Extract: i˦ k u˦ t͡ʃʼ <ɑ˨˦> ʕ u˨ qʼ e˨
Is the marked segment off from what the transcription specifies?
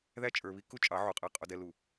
no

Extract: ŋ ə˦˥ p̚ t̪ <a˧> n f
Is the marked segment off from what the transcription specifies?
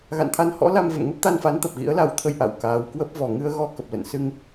no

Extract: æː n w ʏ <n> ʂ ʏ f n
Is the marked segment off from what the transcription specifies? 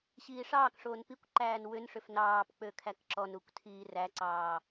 no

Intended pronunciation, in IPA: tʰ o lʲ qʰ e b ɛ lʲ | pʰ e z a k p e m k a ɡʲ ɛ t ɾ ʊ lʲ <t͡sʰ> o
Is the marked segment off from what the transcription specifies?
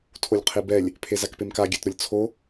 no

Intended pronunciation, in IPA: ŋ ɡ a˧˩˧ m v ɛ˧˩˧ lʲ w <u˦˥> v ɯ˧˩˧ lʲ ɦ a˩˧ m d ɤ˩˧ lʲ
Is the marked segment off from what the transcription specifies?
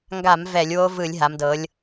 yes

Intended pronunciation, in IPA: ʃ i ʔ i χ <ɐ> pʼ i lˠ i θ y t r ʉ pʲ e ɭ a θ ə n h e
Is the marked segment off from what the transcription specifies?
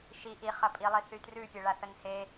no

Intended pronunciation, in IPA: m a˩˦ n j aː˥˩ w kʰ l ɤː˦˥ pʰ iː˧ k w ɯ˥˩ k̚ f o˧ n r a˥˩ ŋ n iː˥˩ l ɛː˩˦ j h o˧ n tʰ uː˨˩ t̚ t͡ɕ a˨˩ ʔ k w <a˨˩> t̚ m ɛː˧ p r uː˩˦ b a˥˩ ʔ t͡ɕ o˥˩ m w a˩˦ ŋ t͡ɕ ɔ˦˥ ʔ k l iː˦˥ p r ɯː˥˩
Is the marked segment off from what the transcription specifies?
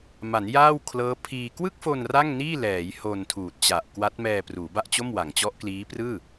yes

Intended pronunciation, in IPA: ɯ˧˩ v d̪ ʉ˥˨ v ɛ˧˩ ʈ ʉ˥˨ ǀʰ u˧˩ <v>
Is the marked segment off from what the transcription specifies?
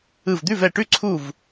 no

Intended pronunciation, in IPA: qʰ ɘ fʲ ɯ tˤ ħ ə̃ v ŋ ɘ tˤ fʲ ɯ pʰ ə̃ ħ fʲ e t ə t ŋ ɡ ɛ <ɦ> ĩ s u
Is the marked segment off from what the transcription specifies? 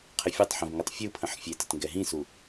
no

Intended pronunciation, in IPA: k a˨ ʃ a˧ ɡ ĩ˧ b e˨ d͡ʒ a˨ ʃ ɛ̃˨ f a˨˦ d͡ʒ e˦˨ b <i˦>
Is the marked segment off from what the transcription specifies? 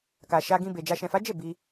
yes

